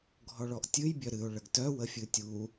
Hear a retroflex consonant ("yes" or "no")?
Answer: yes